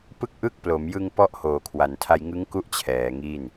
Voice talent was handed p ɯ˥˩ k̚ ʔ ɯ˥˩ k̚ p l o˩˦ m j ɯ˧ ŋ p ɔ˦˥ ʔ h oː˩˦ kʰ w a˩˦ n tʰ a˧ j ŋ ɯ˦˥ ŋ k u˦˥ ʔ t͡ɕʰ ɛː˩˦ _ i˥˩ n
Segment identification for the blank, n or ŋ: ŋ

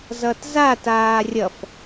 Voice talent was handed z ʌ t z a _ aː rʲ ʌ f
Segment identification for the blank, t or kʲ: t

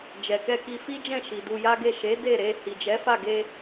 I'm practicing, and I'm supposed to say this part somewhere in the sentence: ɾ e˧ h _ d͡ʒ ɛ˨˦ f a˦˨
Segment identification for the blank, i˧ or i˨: i˨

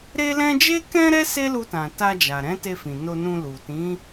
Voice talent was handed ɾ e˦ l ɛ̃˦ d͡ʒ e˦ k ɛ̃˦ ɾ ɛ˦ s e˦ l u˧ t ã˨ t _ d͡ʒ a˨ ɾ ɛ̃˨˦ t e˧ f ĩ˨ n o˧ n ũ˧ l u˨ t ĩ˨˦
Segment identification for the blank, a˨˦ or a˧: a˧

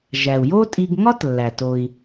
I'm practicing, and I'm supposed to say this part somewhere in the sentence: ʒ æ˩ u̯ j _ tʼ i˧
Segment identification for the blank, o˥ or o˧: o˥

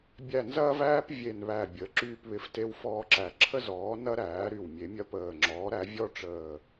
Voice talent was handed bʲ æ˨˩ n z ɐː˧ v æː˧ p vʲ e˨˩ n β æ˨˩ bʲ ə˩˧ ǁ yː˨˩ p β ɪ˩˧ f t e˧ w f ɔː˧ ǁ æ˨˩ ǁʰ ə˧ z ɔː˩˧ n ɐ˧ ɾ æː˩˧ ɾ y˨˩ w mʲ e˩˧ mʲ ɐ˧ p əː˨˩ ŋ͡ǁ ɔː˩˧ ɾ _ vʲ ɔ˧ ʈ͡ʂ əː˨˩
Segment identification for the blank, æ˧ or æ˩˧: æ˩˧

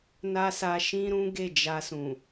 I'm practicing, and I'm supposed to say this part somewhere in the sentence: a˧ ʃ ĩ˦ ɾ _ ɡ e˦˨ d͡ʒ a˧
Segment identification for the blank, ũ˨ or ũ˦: ũ˦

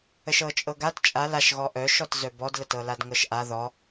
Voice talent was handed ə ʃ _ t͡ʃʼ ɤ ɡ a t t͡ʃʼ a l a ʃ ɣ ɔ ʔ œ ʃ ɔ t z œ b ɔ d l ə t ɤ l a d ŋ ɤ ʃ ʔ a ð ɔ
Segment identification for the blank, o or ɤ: ɤ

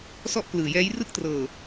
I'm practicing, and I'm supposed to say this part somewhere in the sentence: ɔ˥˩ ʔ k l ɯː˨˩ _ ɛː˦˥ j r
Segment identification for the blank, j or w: j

